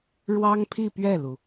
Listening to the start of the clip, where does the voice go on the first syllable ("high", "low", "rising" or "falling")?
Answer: high